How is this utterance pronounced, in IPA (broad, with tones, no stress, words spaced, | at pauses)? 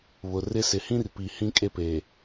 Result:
βʊ˨rɪ˦ sɪ˨hĩ˦rpi˨ hĩ˦ kʼe˦pe˨